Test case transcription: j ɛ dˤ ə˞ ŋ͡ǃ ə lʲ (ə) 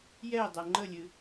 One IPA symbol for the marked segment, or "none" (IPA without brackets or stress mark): ɨ